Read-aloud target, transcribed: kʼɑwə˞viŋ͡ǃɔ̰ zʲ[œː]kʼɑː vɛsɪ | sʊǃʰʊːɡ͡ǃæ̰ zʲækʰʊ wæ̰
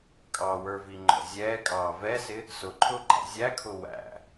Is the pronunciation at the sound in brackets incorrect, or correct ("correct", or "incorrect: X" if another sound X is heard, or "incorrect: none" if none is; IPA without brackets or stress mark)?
incorrect: ɛː